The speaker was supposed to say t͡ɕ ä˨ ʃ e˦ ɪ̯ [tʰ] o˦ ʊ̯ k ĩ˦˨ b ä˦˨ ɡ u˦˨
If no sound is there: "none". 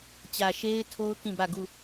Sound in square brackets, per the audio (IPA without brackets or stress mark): tʰ